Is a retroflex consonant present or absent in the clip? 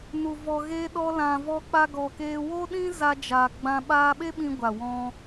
absent